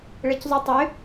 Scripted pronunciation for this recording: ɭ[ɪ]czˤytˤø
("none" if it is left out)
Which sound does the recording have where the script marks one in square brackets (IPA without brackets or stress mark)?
ɛ